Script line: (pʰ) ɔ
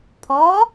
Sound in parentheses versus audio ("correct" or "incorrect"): correct